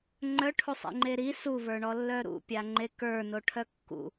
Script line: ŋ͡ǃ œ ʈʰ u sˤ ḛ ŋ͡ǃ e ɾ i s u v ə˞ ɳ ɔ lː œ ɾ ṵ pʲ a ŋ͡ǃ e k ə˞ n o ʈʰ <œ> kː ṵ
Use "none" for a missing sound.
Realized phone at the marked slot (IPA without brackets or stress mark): œ